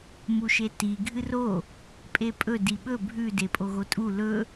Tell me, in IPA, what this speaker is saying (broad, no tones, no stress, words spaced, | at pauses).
muʃeti ɡʱɨro | pʼepʼɵ diɓɵ bʱʉ depʼoɣotʼu lɵ